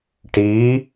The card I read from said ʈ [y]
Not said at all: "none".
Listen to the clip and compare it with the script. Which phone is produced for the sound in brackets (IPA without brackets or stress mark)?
i